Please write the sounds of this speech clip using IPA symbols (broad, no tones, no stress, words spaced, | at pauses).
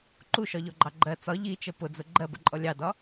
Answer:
ǃuʃɒʎɔɡ͡ǃɑ ɡ͡ǃɜ t͡sɒ ʎit͡ʃə pʊd͡zʊ ɡ͡ǃɜbə̰ǃʼɔ lʲɑdɒ